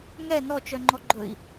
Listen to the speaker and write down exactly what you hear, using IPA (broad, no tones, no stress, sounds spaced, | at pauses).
ŋ ɛ n ɔ t͡ʃ œ ŋ͡ǃ ɔ ɡ͡ǃ ɵ i̯